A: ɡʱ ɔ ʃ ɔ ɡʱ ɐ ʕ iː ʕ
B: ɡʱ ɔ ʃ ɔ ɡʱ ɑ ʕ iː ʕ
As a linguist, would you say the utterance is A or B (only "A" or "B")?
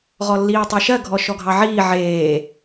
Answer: B